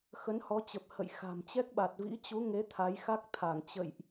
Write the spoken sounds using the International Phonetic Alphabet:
xə˨˦nhɔ˨˦t͡ɕə˨˩p̚ hə̰˧˨jxa̤˨˩m t͡ɕɛ˦˥k̚ɓa˨˩t̚ vḭ˧˥t͡ɕu˨˦ŋe˨˦ t̪ʰa˨˦jxa˦˥k̚t̪ʰa˧˩ŋ t͡ɕə̰˧˨jʔ

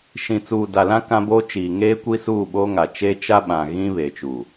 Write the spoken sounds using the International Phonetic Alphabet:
ʃĩ˨t͡suː˨da˨lã˦ kã˦boː˦t͡ʃiː˨ ŋeː˦kʷi˦suː˦˨ɓoː˦ ŋa˨ t͡ʃeː˦ t͡ʃa˦ɓã˨ɣĩ˦ βe˨t͡ʃuː˨

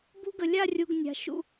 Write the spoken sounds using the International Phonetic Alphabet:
bṳ˥ɡə˧ lʲa˥˧rʲu˧ɡ nʲa̤˧ ʃṵ˥˧

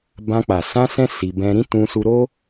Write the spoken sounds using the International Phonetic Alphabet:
bã˧k͡pa˨ sã˧sɛ̃˧ si˧bɛ̃˦ ɾĩ˦tũ˧su˧ ɾo˦

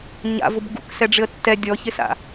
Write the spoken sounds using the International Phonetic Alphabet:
ɲa̰vʊb ɡṵksɛ ɖ͡ʐɪə̯tːɛ dʲɔçɪsa̰

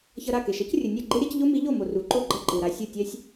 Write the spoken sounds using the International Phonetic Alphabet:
çʌ˧ɾa˥˩ke˩ ʃʌ˩˥c rʲɯ˩nʲɛ˥˩ ɡ͡ǃe˥ɾʲa˩˥c ʎo˥mi˩˥ʎo˥˩mo˩ ru˩˥ǃo˥˩ɡ͡ǃʌ˥˩ ǃɯ˩ɾa˧ sʲɯ˥˩tʲɛ˥sʲ

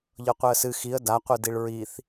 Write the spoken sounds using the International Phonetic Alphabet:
ʎɤqʷɛə̯sɨ xiə̯ daqʷɯ diɭɹiθ

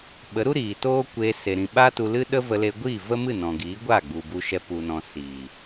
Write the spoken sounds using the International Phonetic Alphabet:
ɓə˨˦ɾu˦ ɾiː˨ toː˦kʷe˧ se˨ɾĩ˨ɓaː˦tu˧ lɨ˦ɗə˦və˧ le˧ɡʷiː˦˨ və˦mɨ˦˨ nɔ̃˨ɡiː˨˦ɡʷaː˦˨ɡ͡bu˨ bu˧ʃɛ˧ pu˨nɔ̃˨ siː˨

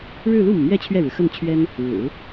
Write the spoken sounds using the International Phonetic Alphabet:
ɻɻ̩˥˧lu˥˩mu˩mɥɛ˥˧ t͡ɕʰɥɛ˥˩ɻɻ̩˩xə˥˩nt͡ɕʰɥɛ˥n | ɻɻ̩˨˩˦

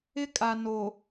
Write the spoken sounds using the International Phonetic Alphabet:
ɪ˦kʼa˨no˨

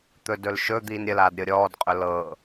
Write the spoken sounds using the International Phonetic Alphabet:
t̪ɵdɵlʃɵ d̪iːnɾʲəlaːd ɾʲɤɾʲɔːd qʼɵlɤ

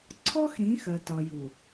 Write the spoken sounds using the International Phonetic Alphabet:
ǀʰɔ˦x ɾĩ˨˦ xɜ˨tɒ˨ju˨

